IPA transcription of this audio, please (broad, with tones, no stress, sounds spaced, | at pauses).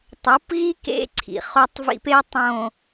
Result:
tˤ o˨˦ p ɣ i˦ k ḛ˦ ǀʰ ḭ˨ χ o˦ tˤ v ḭ˦ p e˦ tˤ õ˨